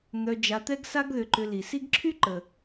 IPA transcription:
n̪ œ˨ d͡ʒ a˨ t̪ ɛ˦ ɡ s a˦ ɡ ð ʏ˨ ǃ ʏ˨ l i˩ s i˦ ɡ ǁʰ y˥ ǃ ə˩

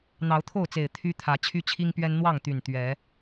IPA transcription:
n̪ ɑ˨˦ ʊ̯ t̪ʰ o˥˨ ʊ̯ t͡s e˨˩ ɪ̯ t̪ʰ y˦ t̪ʰ ä˨˦ t͡ɕʰ y˦ t͡ɕʰ i˦ ŋ p ɥ ɛ˦ n n̪ w ɑ˥˨ ŋ t̪ y˨˩ n t̪ ɥ ɛ˨˦

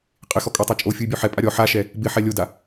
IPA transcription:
qʼ ɪ x ɔ kʼ ɔ tˤ a t͡ʃʼ o fʲ u y̯ bʲ ɔ ħ ɛ pʼ a ɾʲ ɔ ħ a ʃ ɛ | b ɪ ħ ɛ lʲ o d a

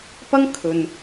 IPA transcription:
p ɐ˥ ŋ kʰ ɵ˨ n

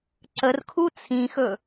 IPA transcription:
ǀ ə r kʰ u t͡sʰ ĩ x ɵ

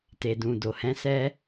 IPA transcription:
t e˨ d ũ˨ d o˨ h ɛ̃˨˦ s ɛ˦

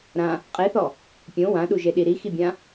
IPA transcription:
ɾ ã | qʼ e θ ɔ | pʲ õ w ã ɗ u ʒ e ɗ i ɾ i x i bʲ ã

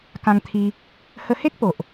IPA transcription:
k ã˧ ŋ t̪ʰ i˧ | h ə˧ h e˦ k̚ p o˨ ʔ

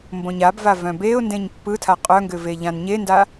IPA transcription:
m b õ ɲ a b v a v œ̃ b e ʊ̯ n d ẽ ɲ pː ɯ tʰ a qʼ œ ŋ ɡ ʏ v e ʎ ã n ɲ e n d a

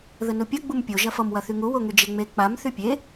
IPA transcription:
ð ə n u pʲ ʌ ɡ͡b u m pʲ o ʒ ɐ f ʌ m w ɐ θ y ŋ u w o ŋ y d͡ʒ e ŋ͡m e k͡p a m θ y pʲ e

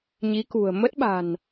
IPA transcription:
ɲ i˨˦ k ṳ˨˩ ə̯ m ə˦˥ t̚ ɓ a̤˨˩ n

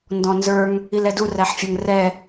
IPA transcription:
n d ɔ̃ n z ə˞ ŋ | i l ɛ d u r æ ħ fʲ ə˞ ŋ r ɛ

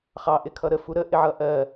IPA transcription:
χ ɑ ʔ ɪ kʰ ʌ ɾ ə f u ɾ ə ʔ ɪ ʕ ʌ ʔ ɜ

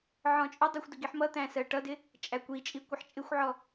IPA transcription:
ʕ ɔ̃ t͡ʃʼ ʊ dˤ i xʷ d ə ɡ i ħ m ʌ t̪ æ̃ s ɜ ʈ ʌ d ɪ | t͡ʃʼ æ kʷ i t͡ʃʼ i kʷ ə ħ t͡ʃʼ ɪ xʷ ʕ ɔ

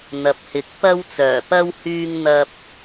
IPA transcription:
n̪ ɐ˨ p̚ h ɪ˨˥ k̚ p ɐ˧ w t͡s œː˨˩ p ɐ˧ w h yː˧ ŋ n̪ ɐ˧ p̚

